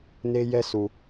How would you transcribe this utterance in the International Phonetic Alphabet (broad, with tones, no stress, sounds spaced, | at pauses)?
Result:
n e˦ j ɛ˦ s u˨